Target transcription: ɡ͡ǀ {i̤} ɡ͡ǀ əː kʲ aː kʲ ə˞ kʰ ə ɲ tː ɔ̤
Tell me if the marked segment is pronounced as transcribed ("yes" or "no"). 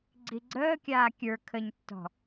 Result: no